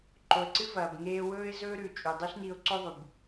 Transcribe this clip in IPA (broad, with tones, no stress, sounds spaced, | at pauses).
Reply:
ǃ o˩ ə̯ ǀ ɨ˥ v ɐː˩ b ŋ eː˧ w ɵː˥ ɪ̯ z ɵː˥ ɾ ʉ˩ t͡ʃʼ ʉ˩ dˤ i˥ ɬ n i˧ ʊ̯ ǀ o˥ ðˤ u˩ b